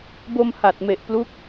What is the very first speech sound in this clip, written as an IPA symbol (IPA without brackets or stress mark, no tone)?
b